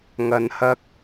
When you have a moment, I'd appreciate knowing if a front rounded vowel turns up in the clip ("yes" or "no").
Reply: no